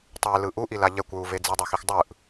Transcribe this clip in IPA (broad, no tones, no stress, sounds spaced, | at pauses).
tˤ e l ɯ ʔ u ʔ i l a ʎ ɛ kʷ ɹ u v e d͡z i dˤ o x i x dˤ ɯ ʔ